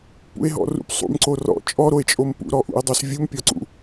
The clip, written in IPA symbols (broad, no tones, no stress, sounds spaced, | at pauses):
p ṵ e̯ ɦ ɔ̰ r ṵ p sˤ ṵ m ǀ o r ɔ̰ t͡ʃʼ ɔ ɾ o e̯ t͡ʃʼ o m p ṵ ɾ ɔ ʔ ṵ e̯ dˤ o s vʲ u m pʲ ɔ ǀ ṵ